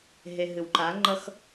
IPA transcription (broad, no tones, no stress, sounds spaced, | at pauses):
ɦ e ɦ ɨ w ǃ a ŋ͡ǃ ʌ x